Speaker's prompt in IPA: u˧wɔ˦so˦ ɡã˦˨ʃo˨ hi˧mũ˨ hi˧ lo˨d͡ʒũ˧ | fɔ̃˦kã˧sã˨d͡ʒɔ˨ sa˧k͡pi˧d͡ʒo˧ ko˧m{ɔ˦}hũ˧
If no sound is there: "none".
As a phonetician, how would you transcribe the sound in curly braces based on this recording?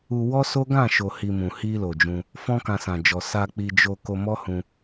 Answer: ɔ˦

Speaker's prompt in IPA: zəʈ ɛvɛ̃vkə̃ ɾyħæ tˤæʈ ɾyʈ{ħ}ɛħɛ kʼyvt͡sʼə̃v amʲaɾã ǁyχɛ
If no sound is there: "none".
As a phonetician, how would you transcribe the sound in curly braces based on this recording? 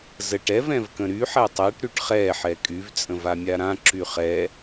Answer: χ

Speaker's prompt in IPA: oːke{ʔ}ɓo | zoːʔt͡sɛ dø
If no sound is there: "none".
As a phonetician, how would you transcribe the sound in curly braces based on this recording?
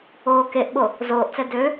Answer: ʔ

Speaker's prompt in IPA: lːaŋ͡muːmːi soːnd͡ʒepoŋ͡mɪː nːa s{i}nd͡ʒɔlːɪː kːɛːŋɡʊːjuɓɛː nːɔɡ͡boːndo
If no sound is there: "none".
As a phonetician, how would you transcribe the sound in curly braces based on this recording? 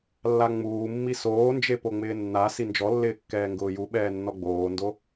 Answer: i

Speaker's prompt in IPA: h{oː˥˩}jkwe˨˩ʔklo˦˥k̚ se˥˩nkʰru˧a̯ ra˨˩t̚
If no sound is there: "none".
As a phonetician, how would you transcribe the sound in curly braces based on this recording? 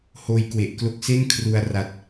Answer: oː˧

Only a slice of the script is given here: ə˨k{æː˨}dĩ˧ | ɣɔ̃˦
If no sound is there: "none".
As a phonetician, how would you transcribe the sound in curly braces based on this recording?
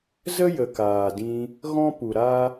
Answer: aː˨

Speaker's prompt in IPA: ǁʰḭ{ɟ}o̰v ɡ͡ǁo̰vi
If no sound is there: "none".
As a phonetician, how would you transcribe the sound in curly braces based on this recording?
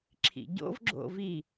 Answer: ɟ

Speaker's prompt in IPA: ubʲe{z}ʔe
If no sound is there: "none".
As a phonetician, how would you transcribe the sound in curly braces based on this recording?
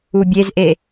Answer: z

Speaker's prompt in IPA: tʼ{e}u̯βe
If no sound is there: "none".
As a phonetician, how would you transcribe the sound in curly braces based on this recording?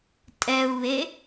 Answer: ɛ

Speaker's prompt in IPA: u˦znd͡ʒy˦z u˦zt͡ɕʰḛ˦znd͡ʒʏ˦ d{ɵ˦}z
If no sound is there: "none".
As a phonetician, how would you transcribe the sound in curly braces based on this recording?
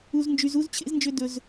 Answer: ɵ˦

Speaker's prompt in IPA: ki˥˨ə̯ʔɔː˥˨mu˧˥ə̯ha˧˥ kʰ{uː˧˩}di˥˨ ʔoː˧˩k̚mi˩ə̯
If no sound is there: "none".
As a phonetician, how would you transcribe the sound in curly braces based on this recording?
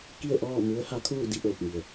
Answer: uː˥˨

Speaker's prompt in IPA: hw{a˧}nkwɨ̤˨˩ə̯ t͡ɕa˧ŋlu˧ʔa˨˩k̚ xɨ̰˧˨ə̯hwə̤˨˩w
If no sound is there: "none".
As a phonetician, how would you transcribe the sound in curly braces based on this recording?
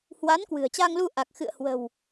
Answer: a˨˦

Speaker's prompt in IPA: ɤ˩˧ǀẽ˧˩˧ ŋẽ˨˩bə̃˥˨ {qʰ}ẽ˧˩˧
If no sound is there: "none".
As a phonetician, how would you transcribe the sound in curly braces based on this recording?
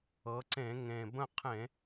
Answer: qʰ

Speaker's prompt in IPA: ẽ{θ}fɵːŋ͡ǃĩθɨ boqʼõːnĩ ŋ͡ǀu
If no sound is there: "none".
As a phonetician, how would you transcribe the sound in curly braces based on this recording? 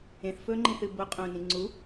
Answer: θ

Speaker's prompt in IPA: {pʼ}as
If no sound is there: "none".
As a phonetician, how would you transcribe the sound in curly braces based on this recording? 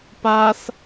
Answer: p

